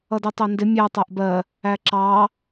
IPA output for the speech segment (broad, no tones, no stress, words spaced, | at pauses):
ʌditˤændɪ mʲæ tˤæʔbɜ | æǁɑ